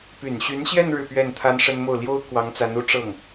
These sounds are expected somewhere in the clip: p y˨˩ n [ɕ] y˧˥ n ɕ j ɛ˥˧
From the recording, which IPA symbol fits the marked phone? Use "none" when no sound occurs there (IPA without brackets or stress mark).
ɕ